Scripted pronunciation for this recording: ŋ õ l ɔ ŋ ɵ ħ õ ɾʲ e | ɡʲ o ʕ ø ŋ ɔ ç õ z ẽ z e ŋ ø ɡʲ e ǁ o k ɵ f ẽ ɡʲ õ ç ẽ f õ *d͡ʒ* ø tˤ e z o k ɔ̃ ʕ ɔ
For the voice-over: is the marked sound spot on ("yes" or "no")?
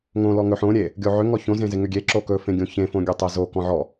no